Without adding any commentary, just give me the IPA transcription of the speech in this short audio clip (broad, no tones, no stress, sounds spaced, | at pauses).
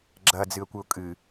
ɡ͡ǁ ɐ d͡z ɨ ə̯ kʷ ɘ ʊ̯ kʼ ɨ